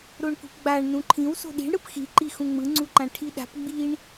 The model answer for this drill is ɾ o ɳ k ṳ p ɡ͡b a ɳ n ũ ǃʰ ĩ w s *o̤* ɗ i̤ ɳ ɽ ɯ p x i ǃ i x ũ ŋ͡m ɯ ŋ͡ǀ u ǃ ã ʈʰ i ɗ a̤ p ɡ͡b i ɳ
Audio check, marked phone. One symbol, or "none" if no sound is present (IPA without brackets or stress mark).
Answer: o̤